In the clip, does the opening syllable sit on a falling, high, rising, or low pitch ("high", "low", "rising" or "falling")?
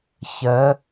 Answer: rising